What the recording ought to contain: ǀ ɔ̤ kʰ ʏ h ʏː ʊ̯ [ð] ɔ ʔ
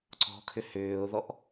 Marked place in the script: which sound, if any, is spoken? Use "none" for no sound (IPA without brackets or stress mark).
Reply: ð